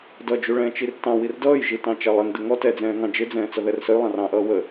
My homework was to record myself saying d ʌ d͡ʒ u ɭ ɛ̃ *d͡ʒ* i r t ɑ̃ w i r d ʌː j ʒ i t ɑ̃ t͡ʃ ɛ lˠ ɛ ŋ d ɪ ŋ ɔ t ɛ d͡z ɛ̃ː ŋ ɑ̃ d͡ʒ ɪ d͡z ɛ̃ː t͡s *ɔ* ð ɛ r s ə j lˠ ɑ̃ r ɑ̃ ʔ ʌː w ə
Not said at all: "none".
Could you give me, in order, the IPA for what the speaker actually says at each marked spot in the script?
t͡ʃ, ʌ

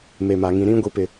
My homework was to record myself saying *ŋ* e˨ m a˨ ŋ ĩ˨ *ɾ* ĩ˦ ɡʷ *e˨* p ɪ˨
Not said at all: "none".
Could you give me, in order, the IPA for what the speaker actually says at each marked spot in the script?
m, ɾ, i˨

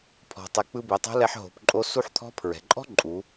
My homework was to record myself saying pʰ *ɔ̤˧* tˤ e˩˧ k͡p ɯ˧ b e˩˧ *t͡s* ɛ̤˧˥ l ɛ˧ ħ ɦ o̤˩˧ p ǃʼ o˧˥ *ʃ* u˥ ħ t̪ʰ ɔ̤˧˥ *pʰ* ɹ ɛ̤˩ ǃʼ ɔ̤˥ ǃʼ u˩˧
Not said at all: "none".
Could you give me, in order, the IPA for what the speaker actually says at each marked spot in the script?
ɔ̤˩, tˤ, s, pʰ

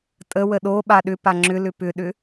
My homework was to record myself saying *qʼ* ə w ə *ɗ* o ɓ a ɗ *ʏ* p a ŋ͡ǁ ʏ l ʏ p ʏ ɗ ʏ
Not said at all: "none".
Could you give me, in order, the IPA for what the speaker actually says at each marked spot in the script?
tʼ, ɗ, ʏ

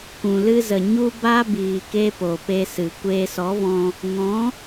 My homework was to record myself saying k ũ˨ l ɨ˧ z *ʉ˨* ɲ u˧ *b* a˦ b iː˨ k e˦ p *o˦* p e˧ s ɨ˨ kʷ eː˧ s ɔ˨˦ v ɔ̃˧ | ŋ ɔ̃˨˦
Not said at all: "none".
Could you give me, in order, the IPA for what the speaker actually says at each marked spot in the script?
ə˨, b, o˨

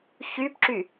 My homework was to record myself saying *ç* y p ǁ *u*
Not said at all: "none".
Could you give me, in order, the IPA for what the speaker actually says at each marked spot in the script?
ç, y

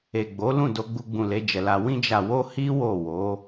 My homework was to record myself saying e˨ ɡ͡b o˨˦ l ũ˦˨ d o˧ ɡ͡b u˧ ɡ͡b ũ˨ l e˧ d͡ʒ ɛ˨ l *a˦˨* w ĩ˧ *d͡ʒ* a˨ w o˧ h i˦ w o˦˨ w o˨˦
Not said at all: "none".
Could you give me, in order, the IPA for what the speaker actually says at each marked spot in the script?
a˧, d͡ʒ

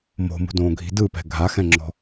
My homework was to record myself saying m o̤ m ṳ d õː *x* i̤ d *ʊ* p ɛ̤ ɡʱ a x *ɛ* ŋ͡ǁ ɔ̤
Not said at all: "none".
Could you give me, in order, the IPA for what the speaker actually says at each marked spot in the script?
ɡʱ, ɯ, ɛ̃

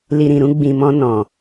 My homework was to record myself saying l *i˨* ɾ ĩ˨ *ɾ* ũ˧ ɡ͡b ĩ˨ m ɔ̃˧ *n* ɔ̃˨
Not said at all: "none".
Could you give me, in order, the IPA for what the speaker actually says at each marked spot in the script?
i˨, ɾ, n

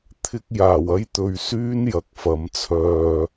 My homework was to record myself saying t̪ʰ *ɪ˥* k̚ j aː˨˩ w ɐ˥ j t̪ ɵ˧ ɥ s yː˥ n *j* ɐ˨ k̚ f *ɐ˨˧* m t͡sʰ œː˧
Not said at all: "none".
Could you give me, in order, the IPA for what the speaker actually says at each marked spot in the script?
ɪ˥, j, ɐ˨˧

